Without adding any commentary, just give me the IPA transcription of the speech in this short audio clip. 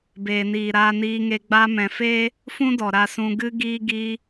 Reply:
b eː˨ n iː˨ ɾ aː˧ n iː˧ ŋ e˧ ɡ͡b a˧ m ɛ̃˨ f eː˦ | f ũ˦ d ɔ˨ ɾ a˨ s ũ˨ ɡ ɨ˧ ɡ iː˧ ɡ iː˧

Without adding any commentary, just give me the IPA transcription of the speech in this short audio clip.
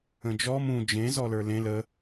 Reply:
ə̃ d͡ʒ ɔ m ũ d͡ʒ ẽ z ɔ l ə˞ l ẽ l ə

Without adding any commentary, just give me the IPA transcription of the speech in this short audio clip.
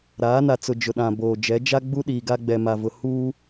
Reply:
ɾ aː˨˦ n a˨ t͡s ʊ˨ d͡ʒ ʊ˨ ɗ ã˨ b oː˨ d͡ʒ ɛ˨˦ d͡ʒ a˦ ɡ͡b u˦ ɗ iː˨ ɡ a˦ ɡ͡b ɛ˨ m a˨ v ʊ˨ h uː˦

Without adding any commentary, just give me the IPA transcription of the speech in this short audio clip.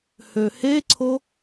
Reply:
h ø h e ǀʰ o

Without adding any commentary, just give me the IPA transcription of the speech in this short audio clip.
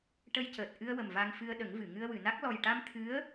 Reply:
ʈ ə˧ j c əː˨˩ t̚ ʔ ɨ˧ ə̯ w ə˨˩ m v a˧ ŋ f ɨ˧ ə̯ ɗ ə˨˩˦ ŋ v ɨ˨˩˨ ŋ ɨ˧ ə̯ w ɨ˨˩˨ n a˦˥ k̚ l ɔ˨˩ j ʈ a˧ m t̪ʰ ɨ˧˥ ə̯

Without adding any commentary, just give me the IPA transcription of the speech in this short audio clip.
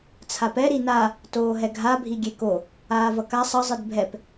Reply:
t͡sʰ a p ɛ ɾ i n a | t oː ɦ ɛ ɡʱ a bʱ i ɡʲ e k o | aː v ʌ k a sˤ ʌ zˤ ɯ d bʱ ɛ p

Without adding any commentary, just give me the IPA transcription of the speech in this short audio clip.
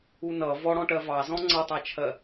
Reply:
u n ʌ v ɔ ɽ ɔ̃ ʈ ɜ v ɑ z ɔ̃ ŋ͡ǀ ʌ tˤ ɑ t͡ʃʰ ɜ

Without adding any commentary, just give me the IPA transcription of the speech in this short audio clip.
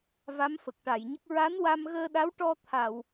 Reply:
v a˧˥ m f ə˨˩ k̚ ʈ a˨˩˨ j ɲ ə˦˥ k̚ ɹ a˧˥ n w a˧ m ɣ əː˧ ɗ a˧˥ w ʈ ɔ˧ t̪ʰ a˨˩˨ w

